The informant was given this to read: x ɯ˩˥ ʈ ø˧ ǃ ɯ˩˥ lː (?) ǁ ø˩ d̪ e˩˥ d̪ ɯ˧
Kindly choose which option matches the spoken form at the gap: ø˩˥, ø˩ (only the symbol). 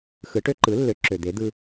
ø˩˥